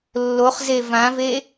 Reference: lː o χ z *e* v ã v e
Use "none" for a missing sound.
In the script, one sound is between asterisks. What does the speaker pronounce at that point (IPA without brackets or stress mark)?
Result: e